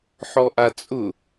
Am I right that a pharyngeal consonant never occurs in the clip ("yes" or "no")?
no